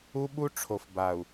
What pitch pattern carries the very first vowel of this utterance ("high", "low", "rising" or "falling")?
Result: high